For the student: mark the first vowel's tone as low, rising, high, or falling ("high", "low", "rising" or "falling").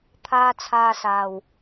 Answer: low